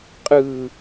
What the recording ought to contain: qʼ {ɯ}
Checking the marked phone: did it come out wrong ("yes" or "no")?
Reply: no